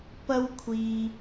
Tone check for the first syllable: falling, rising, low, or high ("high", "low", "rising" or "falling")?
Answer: high